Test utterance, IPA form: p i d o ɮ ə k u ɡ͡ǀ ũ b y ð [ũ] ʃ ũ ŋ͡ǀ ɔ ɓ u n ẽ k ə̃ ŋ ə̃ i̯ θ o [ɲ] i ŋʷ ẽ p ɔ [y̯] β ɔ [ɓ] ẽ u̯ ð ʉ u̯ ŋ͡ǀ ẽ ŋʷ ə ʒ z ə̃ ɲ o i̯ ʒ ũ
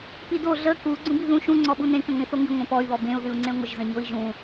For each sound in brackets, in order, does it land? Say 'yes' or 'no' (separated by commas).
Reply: yes, no, yes, no